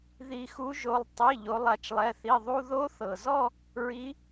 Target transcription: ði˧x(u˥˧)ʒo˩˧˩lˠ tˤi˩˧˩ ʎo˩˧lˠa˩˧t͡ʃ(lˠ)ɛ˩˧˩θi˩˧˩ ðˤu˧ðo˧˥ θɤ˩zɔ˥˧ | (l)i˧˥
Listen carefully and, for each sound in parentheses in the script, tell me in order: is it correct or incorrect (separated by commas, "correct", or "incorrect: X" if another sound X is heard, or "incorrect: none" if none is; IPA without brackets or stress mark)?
incorrect: u˧˥, correct, incorrect: ɹ